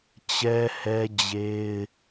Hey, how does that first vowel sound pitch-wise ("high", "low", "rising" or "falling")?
high